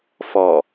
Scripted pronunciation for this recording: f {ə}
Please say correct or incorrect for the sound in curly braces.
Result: incorrect